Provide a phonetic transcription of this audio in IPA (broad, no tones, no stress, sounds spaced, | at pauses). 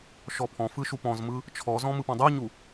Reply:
ʃ ɔ pʰ ɔ̃ f ɯ ʃ u p ɔ̃ z m ɯ | t͡ʃʰ ɔ z ɔ̃ m ɯ p ɔ̃ dˤ u ɲ u